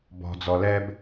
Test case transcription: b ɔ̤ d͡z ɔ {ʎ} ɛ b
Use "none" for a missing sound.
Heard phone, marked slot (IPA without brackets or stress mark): l